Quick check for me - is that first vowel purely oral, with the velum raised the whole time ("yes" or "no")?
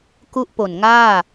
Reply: yes